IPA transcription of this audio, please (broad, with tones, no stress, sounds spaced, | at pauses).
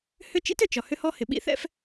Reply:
h ʏ˥ t͡ʃ ḭ˥ t ʏ˩ t͡ʃ ɒ˩ h ʏ˥ h ɔ˥ h ɪ˩ ɓ ḭ˥ θ ɛ̰˥ f